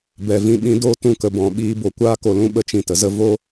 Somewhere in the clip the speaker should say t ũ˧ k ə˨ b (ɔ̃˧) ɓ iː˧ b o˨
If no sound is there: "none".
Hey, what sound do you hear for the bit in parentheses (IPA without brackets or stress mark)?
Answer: ɔ̃˨